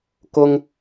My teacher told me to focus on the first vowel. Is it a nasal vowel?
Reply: no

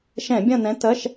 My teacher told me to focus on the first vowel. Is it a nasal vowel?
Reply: yes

